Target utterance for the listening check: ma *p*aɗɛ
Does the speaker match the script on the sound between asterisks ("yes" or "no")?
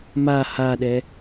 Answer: no